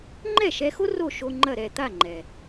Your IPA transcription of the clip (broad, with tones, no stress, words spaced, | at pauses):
ŋ͡ǃɛ˥˩ʃɛ˧xo˥ ro˥˩ ʃo˧ ŋ͡ǃɐ˥˩ɾɛ˥˩ t̪a˥˩ŋ͡ǃɛ˩